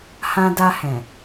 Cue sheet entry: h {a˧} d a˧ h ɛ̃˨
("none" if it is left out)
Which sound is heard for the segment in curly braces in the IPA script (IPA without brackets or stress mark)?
ã˧